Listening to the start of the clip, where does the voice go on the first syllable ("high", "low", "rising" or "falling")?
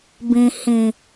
low